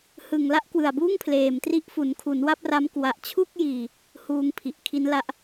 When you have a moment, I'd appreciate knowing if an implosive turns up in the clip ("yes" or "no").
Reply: no